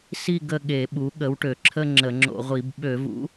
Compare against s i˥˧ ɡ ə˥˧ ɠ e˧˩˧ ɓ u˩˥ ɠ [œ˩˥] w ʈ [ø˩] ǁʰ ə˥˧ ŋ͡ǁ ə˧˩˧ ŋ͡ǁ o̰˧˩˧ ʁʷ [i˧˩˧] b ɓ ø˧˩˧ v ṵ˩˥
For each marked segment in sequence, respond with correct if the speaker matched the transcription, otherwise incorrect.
incorrect: ə˩˥, correct, correct

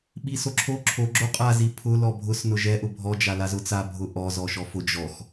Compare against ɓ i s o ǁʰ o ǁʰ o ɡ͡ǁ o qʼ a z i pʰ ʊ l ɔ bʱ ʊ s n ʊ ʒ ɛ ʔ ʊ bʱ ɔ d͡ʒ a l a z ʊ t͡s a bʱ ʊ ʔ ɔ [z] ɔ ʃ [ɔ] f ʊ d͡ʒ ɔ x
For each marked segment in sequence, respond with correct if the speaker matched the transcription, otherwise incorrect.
correct, correct

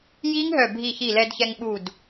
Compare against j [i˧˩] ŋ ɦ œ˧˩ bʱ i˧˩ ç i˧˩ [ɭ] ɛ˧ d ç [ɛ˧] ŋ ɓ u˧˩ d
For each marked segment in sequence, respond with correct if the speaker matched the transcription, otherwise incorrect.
incorrect: i˦˥, incorrect: l, correct

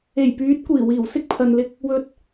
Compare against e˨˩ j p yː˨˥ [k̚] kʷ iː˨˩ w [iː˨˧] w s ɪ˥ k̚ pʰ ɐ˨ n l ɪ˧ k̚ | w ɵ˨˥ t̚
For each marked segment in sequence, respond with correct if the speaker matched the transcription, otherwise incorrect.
incorrect: t̚, incorrect: iː˨˩

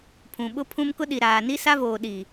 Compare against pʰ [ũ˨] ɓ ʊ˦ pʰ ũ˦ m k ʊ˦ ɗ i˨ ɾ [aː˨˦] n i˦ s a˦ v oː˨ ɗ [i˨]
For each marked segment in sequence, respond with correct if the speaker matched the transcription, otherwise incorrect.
correct, incorrect: aː˨, correct

